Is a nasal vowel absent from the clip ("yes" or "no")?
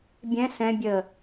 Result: no